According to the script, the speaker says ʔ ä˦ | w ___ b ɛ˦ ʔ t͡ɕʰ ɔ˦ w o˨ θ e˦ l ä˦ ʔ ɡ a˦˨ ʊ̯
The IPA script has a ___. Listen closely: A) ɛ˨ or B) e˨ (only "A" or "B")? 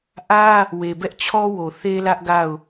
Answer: B